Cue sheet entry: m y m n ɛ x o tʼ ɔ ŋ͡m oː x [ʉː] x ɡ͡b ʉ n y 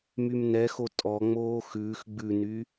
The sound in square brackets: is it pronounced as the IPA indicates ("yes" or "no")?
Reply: yes